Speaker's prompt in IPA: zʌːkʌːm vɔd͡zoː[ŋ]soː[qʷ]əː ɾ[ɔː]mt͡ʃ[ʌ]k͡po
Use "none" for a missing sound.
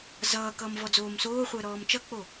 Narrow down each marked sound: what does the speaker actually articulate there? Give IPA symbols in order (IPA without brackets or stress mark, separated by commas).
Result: m, χʷ, ɔː, ʌ